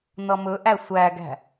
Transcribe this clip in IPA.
n ʌ m ɵ ʔ æ sʷ æ ɡ æ̤

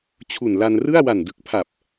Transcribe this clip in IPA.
t͡ɕʰ u˨˩ n l a˧ n r ɯ˥˩ a̯ w a˨˩ n d ɯ˨˩ k̚ pʰ a˨˩ p̚

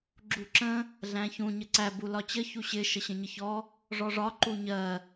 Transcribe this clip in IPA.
ɡ͡ǁ u ǁ ə̃ | ɮ æ̃ ç ũ ɲ ə ǀ æ b u l ɒ t͡ɕ ə ç u ɕ ɪ ʃ ə ɕ ə̃ ɲ ə ç ɔ | ʐ ɔ ʐ ɒ ǃ u ɲ ɜ

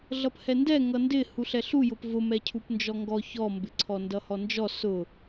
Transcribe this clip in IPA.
ɮ ʌ p h ɛ n d ɛ ŋ ʌ n d ɪ h u ɬ ɛ ɬ u j ʊ p v ʊ m ɛ cʰ u p n d͡ʒ ɔ ŋ ɡ ɔ ç ɔ m b ɪ ǀʰ ɔ n d ʌ h ɔ n d͡ʒ ɔ s ʊ

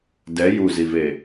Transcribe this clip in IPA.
d ɛ j u z i v e

